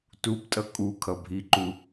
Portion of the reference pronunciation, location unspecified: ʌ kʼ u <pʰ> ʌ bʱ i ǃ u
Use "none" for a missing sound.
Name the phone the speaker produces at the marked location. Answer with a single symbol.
kʰ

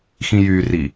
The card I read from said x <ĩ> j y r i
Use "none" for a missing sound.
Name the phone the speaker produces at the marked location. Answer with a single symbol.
ĩ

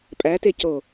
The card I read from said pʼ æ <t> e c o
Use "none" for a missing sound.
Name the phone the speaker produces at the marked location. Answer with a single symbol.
t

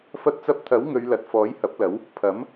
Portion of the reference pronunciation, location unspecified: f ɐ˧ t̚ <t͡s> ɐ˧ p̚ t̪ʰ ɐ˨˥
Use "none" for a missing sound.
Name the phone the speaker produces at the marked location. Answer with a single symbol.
t͡s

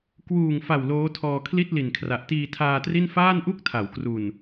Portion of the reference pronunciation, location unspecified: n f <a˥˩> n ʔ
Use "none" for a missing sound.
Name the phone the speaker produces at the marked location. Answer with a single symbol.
aː˥˩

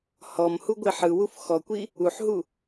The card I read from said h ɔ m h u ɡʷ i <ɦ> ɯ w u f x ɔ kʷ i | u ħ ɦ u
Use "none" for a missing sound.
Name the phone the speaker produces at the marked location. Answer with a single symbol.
ħ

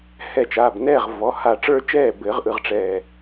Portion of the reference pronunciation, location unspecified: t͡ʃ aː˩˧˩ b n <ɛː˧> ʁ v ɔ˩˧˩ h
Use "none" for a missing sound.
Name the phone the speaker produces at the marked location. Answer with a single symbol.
ɛː˥˨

